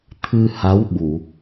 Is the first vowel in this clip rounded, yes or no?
no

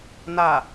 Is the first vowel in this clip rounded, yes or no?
no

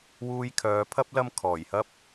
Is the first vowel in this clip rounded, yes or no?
yes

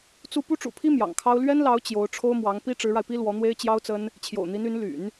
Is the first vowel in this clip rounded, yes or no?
yes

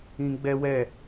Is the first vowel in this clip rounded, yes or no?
no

